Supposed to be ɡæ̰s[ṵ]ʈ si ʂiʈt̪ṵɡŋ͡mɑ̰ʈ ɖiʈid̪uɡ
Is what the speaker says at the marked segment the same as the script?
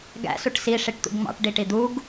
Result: no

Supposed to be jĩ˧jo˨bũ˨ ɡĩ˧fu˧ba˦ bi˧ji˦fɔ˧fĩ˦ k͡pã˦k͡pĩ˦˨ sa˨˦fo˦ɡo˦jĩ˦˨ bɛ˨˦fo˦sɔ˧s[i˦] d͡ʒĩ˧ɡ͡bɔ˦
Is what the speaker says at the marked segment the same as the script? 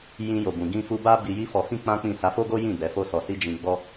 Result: yes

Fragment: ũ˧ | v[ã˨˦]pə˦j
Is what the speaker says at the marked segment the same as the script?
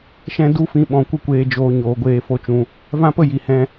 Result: no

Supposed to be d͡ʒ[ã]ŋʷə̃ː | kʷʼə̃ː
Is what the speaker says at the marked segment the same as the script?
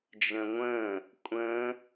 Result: no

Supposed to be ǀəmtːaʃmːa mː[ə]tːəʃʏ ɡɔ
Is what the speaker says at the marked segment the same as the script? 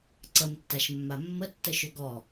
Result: yes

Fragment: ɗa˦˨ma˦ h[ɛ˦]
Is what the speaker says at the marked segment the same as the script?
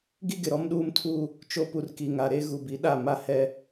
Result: yes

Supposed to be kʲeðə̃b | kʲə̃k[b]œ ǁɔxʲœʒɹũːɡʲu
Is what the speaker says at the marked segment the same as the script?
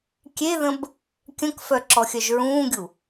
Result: no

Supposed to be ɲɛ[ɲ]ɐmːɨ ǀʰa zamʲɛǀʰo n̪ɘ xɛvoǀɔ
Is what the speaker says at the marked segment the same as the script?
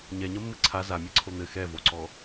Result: yes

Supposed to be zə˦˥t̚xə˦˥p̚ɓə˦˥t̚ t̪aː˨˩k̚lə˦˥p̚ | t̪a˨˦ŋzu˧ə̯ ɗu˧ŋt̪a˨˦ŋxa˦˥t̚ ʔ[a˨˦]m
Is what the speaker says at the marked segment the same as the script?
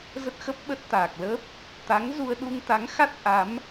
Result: yes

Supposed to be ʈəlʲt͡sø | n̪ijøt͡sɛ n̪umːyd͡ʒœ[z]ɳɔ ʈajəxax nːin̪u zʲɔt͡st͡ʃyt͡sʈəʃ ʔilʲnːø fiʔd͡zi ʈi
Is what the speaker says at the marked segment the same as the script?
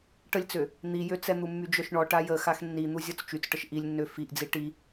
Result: no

